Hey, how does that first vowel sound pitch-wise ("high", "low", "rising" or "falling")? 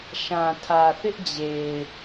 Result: low